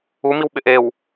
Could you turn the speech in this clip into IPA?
u m i w ɓ ɪ ʔ e w

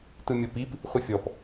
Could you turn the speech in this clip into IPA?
t ɯ mʲ ɤ p i p | χʷ ɯ fʲ ɔ p

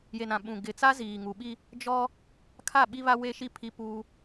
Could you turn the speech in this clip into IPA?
j e˨ n ã˨ ɓ ũ˨ ɡ ɪ˨ t͡s a˦ z iː˨ ŋ u˨ ɓ i˦ | d͡ʒ ɔ˦ | kʰ a˦˨ ɓ i˦ β a˦ w e˦ ʃ i˦˨ pʰ i˦ p uː˦

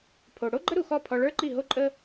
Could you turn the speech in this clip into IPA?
pʰ o˩ ɽ o˥ ɡ͡ǃ ə˥ ɾ u˩ x ɔ˥˩ pʰ ɔ˧ ɭ ə˞˥ ǃ i˥˩ ɦ o˥ ǃʼ ə˥

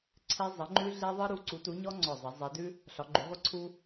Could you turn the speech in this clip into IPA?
ǀʰ e˥ zˤ ə˧˥ ŋ͡ǃ ʉ˥ ɮ e˥ ðˤ ɯ˥ ɾ u˧˥ ǀ u˧˥ t u˧˥ ɲ ɔ˥ ŋ͡ǀ ɔ˦˨ zˤ e˧˥ zˤ e˧˥ d ʉ˥ | ɬ ɒ˧˥ ɡ͡ǃ ʉ˧˥ ʁʷ ə˥ ǀʰ u˥

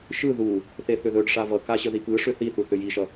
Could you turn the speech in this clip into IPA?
ʃ ɯ ð u | θ e θ ʏ ð ɵ ɖ ʂ a v ʌ k a ɕ ə ð i p ɯ ʂ ʏ θ i θ u θ ʏ j i ʃ ʌ

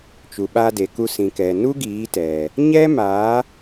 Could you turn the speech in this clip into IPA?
t͡ʃ u˨ ɓ aː˧ d e˨ k u˧ s ĩ˨ k ɛ˨ n u˦ ɡ iː˨˦ t ɛ˨ | ɲ ɛ˦ m aː˨˦

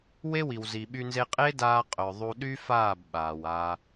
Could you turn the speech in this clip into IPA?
w e˦ w i˨ w z i˨ ɓ y˧ n z e˧ qʼ e˦ d aː˧ qʼ œ˨ ðˤ u˧ ɗ y˦ f aː˦˨ b ɓ aː˨ w a˧

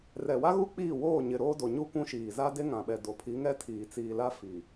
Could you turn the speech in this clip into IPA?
r ɛ˨ w a˦ ɣ u˦ k͡p iː˦˨ w oː˦˨ ɲ ɪ˨ ɾ oː˦ d o˨ ɲ uː˦ kʷ ũ˦ ʃ iː˨ z a˦ d e˦ ŋ ã˨ ɓ ɛ˨ d o˨ pʰ i˨˦ ŋ ɛ˦ tʰ iː˨ t͡s iː˨ l a˦ f iː˨

